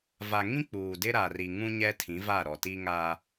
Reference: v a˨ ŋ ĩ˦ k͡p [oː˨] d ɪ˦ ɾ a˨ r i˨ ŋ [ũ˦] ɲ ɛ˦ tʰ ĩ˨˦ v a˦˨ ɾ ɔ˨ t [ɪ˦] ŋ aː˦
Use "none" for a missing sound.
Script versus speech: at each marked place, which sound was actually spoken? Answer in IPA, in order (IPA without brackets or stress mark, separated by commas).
uː˨, ũ˦, i˦